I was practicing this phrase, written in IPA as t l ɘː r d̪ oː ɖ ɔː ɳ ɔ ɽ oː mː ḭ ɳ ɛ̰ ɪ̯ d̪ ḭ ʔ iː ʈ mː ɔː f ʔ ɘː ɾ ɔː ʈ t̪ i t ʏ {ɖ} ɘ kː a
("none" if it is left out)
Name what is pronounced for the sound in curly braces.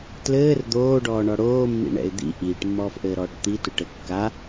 ʈ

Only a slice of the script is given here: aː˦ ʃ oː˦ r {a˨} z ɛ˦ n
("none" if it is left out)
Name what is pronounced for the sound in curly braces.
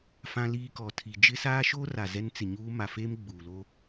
a˨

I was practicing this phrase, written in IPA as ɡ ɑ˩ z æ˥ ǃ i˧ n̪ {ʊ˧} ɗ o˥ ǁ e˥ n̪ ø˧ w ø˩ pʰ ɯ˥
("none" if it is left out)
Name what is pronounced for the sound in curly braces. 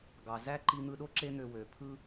ɯ˧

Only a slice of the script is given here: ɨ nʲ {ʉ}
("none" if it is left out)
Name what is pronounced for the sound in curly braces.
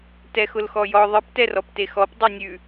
ʉ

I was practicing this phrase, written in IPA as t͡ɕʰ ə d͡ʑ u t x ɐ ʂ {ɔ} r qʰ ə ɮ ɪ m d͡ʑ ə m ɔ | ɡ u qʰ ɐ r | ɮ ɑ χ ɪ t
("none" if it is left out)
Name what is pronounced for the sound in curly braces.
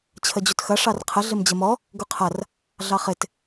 ɑ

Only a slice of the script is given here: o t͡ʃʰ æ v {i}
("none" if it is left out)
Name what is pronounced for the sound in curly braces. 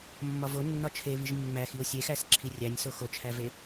e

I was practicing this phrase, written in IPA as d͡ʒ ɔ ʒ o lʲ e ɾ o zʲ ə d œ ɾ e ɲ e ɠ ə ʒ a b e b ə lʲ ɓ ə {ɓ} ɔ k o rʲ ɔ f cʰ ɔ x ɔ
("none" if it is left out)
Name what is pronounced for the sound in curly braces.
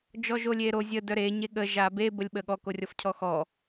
ɠ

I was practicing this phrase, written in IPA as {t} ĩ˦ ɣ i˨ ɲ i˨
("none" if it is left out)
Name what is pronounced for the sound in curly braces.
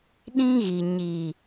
ɗ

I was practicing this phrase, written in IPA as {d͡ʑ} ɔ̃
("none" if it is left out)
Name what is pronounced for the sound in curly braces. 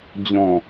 d͡ʑ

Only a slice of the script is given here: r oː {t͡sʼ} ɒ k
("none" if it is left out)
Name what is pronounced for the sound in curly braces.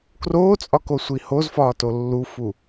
t͡sʼ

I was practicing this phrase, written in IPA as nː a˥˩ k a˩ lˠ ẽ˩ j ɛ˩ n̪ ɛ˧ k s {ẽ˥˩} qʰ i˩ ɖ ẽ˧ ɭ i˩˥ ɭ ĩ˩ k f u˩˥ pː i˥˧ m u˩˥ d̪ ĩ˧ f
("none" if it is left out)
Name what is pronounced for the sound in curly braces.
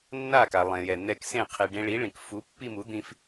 ẽ˥˩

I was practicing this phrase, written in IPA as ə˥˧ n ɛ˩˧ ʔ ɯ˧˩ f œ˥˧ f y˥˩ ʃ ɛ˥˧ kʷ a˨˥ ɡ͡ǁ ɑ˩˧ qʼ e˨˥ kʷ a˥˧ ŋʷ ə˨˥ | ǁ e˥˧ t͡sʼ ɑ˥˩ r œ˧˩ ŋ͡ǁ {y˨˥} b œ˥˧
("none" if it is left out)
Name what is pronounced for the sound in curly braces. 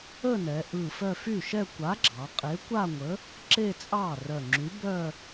y˨˥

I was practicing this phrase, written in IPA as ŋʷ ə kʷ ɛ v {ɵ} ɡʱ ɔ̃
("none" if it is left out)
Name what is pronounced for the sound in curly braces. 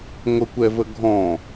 ə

